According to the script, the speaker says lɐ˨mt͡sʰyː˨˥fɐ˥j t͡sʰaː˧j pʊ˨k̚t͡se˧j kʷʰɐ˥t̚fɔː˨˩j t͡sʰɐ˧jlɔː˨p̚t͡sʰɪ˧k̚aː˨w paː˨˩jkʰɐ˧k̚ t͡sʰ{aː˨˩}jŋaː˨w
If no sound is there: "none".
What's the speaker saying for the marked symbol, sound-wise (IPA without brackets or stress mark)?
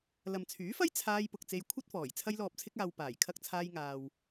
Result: aː˧